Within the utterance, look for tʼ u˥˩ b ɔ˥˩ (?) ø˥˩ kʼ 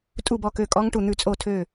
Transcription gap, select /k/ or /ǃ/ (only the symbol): k